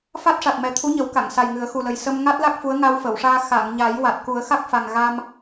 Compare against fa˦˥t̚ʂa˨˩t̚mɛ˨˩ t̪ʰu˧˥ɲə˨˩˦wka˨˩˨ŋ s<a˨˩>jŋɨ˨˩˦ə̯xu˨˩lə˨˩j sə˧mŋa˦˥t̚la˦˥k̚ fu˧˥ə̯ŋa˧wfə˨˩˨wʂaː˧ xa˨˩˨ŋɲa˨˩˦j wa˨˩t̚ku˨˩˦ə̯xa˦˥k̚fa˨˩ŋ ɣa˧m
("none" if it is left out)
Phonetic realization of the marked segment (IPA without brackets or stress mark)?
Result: a˨˩